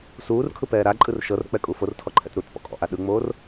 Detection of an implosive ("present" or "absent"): present